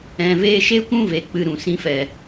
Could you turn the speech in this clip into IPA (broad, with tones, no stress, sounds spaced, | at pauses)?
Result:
ɛ̃˨ v eː˧ ʃ e˦ kʷ ũ˦ v e˨ k͡p ɨ˧ ɾ ũ˨ s ĩ˧ f ɛ˨